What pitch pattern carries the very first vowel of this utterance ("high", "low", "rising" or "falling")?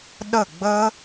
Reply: falling